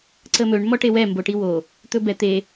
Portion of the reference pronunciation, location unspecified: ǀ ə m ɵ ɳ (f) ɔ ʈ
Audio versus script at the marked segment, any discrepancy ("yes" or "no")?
yes